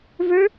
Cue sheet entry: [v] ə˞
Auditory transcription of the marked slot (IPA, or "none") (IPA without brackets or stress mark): v